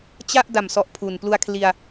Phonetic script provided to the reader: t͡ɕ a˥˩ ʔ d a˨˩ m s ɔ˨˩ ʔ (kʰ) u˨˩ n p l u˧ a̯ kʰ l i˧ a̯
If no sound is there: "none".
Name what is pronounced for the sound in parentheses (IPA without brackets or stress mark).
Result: pʰ